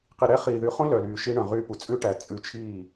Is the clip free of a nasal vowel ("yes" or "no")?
no